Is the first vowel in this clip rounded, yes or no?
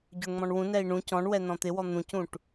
yes